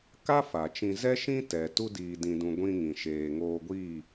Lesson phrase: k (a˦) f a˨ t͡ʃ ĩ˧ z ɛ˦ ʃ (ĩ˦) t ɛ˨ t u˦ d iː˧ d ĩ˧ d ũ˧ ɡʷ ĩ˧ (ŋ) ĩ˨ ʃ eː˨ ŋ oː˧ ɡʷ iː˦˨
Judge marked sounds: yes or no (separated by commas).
yes, yes, yes